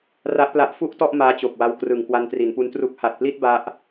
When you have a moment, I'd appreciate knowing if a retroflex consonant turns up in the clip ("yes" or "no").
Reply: no